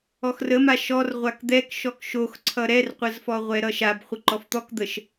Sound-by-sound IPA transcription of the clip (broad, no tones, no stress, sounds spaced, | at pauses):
ɔ x r ə m a ʃ ɔ r ʁʷ a k d̪ ɛ k ʃ ɔ k ʃ o x ǀʰ ʌ ɾ ɛ r qʷ ə z f ɔ ʁʷ ɛ ɾ ʌ ʃ a b χʷ ə ǃ ɔ f t̪ ɔ k d̪ ə ʃ